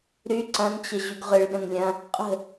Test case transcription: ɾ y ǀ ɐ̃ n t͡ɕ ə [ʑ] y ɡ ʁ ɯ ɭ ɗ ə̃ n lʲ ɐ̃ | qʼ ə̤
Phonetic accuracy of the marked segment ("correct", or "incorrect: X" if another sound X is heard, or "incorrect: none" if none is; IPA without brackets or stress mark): correct